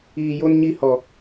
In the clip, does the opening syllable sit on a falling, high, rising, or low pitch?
low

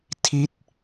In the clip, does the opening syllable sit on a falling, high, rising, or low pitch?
falling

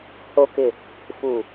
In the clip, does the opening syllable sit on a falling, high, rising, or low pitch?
low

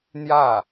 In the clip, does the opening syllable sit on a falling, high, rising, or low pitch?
falling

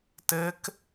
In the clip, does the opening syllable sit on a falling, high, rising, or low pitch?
rising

